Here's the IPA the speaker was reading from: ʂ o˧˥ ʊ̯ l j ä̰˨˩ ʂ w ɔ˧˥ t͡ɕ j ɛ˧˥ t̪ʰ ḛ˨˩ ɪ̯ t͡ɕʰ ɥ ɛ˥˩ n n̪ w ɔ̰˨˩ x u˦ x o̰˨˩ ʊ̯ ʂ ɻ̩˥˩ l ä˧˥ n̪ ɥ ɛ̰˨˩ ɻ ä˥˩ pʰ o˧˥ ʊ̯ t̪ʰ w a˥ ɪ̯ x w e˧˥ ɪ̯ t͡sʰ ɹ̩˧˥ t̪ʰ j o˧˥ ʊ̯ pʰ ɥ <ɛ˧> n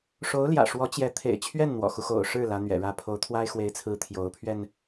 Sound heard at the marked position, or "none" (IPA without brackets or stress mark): ɛ˧